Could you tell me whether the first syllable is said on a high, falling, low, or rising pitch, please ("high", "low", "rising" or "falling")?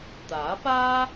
rising